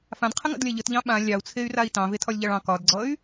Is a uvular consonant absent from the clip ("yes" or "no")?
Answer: no